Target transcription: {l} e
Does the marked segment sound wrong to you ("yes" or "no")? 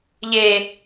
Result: yes